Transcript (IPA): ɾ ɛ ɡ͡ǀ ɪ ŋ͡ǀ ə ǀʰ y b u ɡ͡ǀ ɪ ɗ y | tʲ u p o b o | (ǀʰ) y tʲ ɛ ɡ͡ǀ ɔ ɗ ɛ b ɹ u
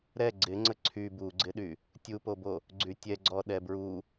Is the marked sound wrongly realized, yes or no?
yes